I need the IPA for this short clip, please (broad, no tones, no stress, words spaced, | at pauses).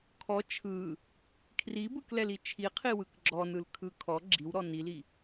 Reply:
kʰɔ t͡ʃʰɯ | kʰribɯklɛli t͡ʃʰiqʰiwɯk ɡ͡ǁɔnɯlkʰɯ kʰɔ ɡ͡ǁiwɾɔ nili